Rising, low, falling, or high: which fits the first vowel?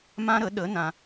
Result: high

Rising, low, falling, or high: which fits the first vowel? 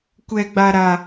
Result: high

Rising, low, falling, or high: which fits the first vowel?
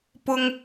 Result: high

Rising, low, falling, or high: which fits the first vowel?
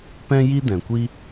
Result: high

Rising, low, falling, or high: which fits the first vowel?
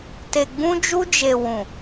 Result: low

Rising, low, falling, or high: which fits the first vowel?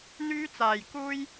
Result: high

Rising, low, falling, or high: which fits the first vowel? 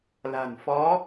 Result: low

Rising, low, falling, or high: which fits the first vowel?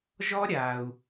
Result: high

